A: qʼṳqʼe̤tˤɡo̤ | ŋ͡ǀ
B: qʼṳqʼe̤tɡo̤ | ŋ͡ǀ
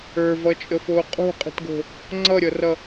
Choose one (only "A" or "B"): B